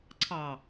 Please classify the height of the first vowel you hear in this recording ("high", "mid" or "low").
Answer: low